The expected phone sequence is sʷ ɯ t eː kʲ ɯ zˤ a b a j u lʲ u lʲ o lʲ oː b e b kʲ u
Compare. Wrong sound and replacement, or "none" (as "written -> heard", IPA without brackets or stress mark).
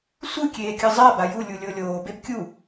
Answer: t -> kʲ